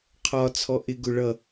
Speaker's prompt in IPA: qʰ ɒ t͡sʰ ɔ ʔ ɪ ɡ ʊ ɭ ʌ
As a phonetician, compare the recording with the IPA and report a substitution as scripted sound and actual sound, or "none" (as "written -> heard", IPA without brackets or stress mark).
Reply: none